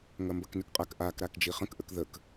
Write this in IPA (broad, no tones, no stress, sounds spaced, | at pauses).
ŋ ɐ m b ɐ k n ø k qʼ a k ʔ a k ɾ a k d͡ʒ i χ ə̃ k ʔ ə k ð ə k